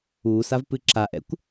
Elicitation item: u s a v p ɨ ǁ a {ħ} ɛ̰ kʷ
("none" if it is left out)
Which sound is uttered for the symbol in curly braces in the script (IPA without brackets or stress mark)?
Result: ʔ